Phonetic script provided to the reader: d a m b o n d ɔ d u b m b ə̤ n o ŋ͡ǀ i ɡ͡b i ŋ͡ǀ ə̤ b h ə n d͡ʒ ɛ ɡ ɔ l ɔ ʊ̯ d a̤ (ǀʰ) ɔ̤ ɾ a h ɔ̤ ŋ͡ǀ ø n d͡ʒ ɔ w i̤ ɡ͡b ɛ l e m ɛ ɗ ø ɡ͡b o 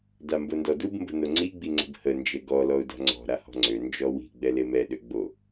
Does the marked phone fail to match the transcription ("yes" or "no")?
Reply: yes